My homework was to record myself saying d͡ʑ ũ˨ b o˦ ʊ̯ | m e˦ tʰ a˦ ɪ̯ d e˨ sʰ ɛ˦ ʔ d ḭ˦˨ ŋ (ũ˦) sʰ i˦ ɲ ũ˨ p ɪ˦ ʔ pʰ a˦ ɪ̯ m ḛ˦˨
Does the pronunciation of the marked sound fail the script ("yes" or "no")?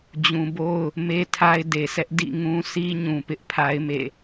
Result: no